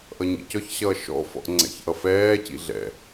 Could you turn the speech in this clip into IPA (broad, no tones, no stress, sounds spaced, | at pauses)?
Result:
ʔ ʌ ɲ ḭ c ɔ ç ɕ ʌː ʃ ɔ̰ f ɔ̰ ʔ ŋ͡ǀ ɛ̰ ç ʔ ʌ f ɛː c ḭ ɮ ɛ̰